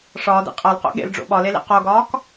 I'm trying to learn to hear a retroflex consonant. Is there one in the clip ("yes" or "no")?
yes